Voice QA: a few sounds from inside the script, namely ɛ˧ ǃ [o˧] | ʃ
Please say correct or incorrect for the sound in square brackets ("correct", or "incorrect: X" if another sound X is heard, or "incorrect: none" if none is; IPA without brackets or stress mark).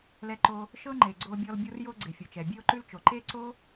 correct